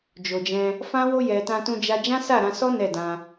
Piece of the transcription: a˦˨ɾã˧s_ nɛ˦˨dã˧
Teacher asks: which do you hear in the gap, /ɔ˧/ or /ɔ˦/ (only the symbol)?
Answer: ɔ˦